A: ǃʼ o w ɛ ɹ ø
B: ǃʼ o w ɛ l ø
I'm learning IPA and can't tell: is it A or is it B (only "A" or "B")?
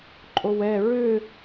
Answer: A